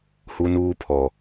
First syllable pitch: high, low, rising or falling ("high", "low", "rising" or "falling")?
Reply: high